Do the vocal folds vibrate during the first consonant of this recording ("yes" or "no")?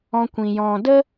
no